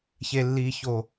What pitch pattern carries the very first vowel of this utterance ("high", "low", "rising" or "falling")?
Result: low